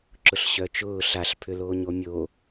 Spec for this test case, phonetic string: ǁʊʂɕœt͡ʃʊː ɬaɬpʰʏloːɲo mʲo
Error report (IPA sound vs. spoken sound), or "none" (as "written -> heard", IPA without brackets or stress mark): ʂ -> ɬ